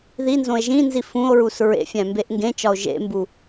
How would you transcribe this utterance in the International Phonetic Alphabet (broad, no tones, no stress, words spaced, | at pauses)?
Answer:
ðinzõe̯ ʒĩnzi fũo̯ɹus ɹḛfʲæ̃mbeʔ ŋɡẽt͡ʃɒo̯ ʒḛmbu